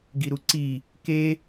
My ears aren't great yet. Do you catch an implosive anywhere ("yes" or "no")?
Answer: no